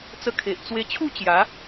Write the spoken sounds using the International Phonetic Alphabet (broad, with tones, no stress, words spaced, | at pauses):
t͡sə˧kʰe˨ʔ t͡swe˧t͡ɕʰu˥˧ t͡ɕja˨˦